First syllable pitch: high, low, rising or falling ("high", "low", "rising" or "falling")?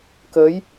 rising